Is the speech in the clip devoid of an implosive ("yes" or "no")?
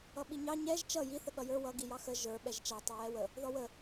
no